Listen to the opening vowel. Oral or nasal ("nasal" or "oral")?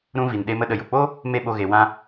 nasal